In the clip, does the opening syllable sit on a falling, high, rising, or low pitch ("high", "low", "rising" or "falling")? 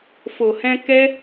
low